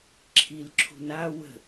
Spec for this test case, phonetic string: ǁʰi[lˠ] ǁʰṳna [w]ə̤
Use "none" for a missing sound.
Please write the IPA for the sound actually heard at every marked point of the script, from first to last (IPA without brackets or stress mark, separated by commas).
l, w